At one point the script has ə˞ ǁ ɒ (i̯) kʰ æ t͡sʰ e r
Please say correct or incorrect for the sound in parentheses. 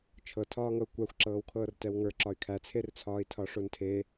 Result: incorrect